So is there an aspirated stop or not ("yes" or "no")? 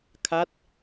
yes